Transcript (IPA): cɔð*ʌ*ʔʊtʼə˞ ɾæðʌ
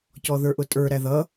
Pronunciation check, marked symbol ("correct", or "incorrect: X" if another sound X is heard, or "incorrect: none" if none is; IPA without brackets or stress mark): incorrect: ə˞